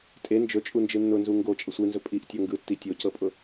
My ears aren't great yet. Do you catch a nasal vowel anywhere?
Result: no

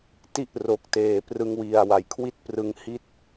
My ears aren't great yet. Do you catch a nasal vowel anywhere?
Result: no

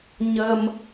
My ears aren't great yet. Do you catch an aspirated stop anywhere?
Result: no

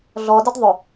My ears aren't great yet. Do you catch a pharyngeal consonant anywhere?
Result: no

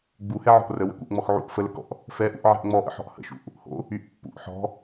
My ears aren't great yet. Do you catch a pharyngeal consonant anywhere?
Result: yes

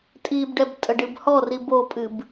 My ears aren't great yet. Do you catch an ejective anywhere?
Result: yes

